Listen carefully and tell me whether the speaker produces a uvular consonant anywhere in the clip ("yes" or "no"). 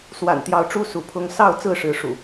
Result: no